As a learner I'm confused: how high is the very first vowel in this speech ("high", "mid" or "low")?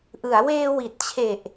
high